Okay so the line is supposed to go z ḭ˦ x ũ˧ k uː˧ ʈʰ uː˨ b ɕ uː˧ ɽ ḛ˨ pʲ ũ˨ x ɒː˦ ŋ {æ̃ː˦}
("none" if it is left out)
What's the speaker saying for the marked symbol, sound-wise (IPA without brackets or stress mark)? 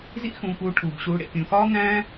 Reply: æ̃ː˦